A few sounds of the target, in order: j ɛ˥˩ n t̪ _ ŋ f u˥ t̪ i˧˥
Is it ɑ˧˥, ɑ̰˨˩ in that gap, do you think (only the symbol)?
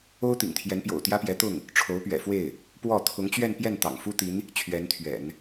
ɑ̰˨˩